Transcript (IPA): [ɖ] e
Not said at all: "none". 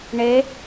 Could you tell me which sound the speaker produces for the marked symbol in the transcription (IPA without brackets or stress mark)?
ɳ